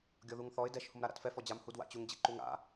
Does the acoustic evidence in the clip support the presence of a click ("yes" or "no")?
yes